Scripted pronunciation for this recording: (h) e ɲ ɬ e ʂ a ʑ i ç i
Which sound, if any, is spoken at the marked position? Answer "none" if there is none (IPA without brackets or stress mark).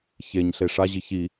ç